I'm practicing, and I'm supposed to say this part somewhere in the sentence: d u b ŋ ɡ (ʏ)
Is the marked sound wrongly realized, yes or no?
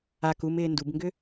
no